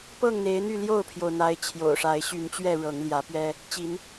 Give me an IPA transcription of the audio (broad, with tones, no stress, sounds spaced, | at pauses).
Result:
p ɤ˥˨ ŋ n̪ e˨˦ ɪ̯ n̪ y˥˨ l j o˥˨ ʊ̯ pʰ j o˩ ʊ̯ n̪ a˨˦ ɪ̯ t͡ɕʰ j o̰˨˩ ʊ̯ ʂ a˨˦ ɪ̯ ɕ y˨˦ n t͡ɕ ɥ ɛ˥˨ ɻ ɤ˨˦ ŋ l j ä˨˦ p ɥ ɛ˦ | t͡ɕ i˨˦ n